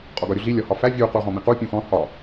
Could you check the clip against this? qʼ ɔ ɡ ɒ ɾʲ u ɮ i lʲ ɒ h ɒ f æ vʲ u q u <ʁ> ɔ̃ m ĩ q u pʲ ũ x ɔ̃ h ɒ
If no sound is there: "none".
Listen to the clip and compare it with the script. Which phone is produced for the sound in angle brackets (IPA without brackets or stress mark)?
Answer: ʁ